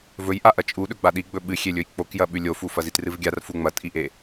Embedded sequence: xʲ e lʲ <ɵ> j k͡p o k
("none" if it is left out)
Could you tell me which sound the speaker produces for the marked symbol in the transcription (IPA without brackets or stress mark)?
ɵ